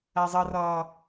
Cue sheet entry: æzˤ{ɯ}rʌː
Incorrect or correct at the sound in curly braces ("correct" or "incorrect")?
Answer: incorrect